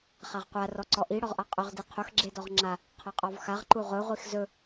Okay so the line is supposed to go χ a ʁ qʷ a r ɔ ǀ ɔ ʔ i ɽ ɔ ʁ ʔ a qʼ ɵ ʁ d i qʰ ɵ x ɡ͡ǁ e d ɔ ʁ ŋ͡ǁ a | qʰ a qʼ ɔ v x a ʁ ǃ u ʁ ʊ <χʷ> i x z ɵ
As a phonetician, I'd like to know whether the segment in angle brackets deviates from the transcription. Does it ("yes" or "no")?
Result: yes